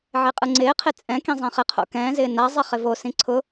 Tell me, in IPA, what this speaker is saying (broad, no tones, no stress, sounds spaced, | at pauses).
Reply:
ʕ e qʼ ɯ ŋ͡ǀ ɪː qʰ e t͡sʼ ɛ̃ k ĩ zˤ ɛ̃ χ ɪ qʰ o̰ k ɛ̃ː z ɪː n a zˤ ɛ χ ɪ v o s ĩ ǀʰ ʊ